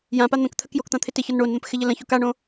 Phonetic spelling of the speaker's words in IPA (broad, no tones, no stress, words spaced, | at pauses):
jãpa n̪ə̃kt̪ʰək jokt̪ã t̪ʰɪtɪçɒn ɳonn̪ə̃p xɪʎɘlə̃ço kaɳõ